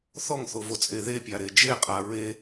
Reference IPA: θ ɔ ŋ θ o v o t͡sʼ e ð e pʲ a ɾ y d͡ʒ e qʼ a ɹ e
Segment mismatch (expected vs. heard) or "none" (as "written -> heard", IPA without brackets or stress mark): y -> e